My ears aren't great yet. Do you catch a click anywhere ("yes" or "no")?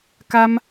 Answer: no